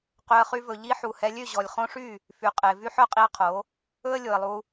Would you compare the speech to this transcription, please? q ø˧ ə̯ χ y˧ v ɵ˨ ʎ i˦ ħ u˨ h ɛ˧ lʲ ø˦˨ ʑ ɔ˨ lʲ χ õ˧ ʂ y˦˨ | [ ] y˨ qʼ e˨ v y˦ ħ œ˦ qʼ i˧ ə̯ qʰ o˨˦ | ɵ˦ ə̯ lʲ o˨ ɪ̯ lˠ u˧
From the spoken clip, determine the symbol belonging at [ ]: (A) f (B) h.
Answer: A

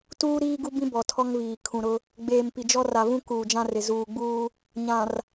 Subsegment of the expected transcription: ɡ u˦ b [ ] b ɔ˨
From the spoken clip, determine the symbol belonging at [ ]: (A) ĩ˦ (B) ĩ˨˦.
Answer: A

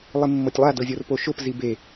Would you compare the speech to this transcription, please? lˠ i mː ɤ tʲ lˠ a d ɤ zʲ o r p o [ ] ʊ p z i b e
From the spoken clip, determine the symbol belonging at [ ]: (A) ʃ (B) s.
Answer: A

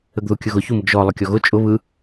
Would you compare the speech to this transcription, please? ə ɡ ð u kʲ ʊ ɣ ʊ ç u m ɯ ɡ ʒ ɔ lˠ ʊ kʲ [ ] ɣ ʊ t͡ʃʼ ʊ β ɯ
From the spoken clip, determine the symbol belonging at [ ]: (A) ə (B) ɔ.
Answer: B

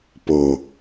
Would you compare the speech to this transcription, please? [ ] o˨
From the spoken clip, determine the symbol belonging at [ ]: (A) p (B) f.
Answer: A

